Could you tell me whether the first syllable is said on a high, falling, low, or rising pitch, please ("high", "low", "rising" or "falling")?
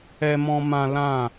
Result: high